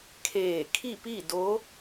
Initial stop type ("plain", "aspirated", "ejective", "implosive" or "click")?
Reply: aspirated